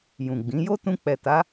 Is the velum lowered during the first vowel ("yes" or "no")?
yes